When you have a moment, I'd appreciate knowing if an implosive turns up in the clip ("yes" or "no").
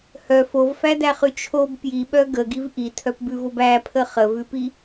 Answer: yes